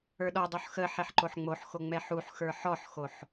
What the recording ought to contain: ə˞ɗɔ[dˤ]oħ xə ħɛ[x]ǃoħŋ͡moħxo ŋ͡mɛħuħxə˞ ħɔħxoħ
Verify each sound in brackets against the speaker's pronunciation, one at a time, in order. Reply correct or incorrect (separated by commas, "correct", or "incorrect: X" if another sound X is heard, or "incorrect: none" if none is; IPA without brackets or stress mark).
correct, incorrect: ħ